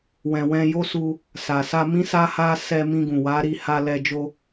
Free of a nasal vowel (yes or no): no